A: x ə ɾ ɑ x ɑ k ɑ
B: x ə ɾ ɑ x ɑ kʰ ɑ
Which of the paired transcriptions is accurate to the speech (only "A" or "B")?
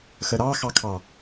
B